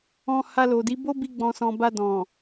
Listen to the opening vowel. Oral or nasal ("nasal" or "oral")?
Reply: nasal